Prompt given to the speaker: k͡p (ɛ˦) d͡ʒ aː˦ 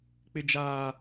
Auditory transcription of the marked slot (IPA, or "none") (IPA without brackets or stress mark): ɪ˦